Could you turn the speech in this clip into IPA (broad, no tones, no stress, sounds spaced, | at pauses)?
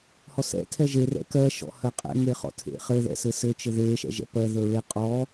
h ɔ s ɛ̰ tʰ ɛ ʒ e r ɛ̰ k ɜ ʃ ɔ̰ h ɜ qʼ ɛ̰ ŋ e χ ɔ̰ tʰ ḛ χ ɘ ð ɛ̰ s ɘ s ɘ t͡ʃ ɘ ð e ʃ ɛ̰ ʒ ɛ̰ p ɜ ð ə˞ ɹ e qʼ ɔ